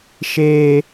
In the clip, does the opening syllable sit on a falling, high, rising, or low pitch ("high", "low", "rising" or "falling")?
high